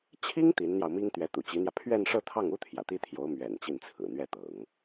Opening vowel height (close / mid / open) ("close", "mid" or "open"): close